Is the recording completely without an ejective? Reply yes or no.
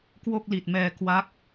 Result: yes